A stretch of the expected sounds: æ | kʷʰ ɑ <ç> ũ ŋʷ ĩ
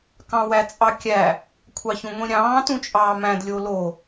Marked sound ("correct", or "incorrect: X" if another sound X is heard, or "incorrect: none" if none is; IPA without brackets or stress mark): correct